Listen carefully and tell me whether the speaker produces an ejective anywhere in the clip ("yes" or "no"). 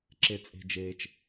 yes